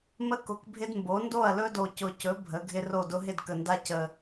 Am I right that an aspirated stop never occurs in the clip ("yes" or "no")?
yes